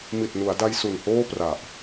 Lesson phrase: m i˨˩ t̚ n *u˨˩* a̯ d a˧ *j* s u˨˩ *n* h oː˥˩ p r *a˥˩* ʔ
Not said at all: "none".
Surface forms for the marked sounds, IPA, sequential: u˩˦, j, n, a˨˩

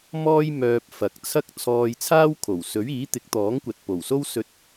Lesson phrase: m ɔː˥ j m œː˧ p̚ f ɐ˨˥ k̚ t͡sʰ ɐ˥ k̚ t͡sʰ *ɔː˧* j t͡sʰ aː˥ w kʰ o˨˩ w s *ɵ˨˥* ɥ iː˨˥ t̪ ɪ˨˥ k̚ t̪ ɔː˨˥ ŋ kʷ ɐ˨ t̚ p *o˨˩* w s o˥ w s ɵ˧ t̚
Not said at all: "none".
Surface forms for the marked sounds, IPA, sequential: ɔː˧, ɵ˨˥, o˨˩

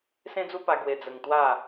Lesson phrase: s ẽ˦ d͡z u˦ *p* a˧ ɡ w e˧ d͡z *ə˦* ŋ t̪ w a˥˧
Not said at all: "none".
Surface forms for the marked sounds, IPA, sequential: p, ə˧

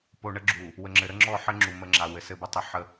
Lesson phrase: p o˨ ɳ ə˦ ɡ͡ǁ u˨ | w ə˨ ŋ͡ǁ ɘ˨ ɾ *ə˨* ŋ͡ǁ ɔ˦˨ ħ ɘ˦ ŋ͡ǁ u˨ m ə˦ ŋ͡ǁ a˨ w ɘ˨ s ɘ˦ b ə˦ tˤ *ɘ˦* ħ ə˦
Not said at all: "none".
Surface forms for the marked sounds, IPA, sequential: ə˦, ɘ˦

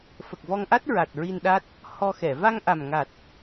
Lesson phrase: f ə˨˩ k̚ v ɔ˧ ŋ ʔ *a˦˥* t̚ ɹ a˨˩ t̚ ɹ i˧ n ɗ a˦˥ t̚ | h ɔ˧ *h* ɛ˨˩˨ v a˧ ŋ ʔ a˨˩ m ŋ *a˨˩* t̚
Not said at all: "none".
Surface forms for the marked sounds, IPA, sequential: a˦˥, x, a˨˩

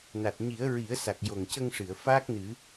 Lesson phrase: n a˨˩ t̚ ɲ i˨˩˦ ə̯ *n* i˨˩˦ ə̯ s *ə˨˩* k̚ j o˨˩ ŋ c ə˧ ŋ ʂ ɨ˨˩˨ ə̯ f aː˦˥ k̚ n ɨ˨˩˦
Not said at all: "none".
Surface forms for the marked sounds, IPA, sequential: ɹ, a˨˩

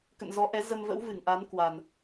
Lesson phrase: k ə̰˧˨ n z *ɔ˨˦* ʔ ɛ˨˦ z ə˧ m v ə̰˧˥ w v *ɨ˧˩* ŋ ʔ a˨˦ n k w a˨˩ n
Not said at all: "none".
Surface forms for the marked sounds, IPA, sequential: ɔ˨˦, ɨ˧˩

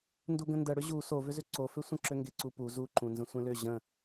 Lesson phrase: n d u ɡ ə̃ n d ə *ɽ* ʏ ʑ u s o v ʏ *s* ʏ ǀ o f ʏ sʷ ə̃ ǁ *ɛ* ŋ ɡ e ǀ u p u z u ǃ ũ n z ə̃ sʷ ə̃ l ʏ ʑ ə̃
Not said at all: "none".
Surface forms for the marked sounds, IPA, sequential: ɽ, z, ʏ

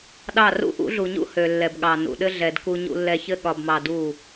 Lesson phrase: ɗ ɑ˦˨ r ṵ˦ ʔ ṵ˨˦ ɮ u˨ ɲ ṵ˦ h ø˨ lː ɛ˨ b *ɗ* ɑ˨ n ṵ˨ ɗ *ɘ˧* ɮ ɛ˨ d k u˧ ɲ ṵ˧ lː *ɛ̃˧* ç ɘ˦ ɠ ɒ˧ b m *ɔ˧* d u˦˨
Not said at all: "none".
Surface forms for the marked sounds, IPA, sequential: ɠ, ɘ˦, ɛ˧, ɑ˧

